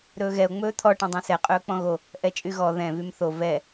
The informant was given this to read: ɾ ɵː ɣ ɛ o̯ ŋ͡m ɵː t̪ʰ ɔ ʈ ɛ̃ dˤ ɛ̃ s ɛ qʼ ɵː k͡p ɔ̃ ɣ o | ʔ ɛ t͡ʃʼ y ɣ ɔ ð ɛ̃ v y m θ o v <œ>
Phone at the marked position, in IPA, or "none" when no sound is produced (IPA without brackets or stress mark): ɛ